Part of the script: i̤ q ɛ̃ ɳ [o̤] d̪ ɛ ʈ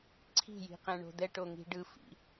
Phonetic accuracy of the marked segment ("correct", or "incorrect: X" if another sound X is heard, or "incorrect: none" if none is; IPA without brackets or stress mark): correct